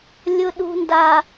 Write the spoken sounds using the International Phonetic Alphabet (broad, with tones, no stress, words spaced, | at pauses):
lʲʊ˦ɗṳ˦nda˦